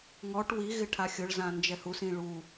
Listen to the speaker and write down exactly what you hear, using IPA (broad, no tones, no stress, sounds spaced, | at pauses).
ŋ ɔ ʈ w i ɣ ɪ ʈʰ a xʲ ʊ ɭ z ã n d͡ʒ ɛ h u s ĩ ɭ u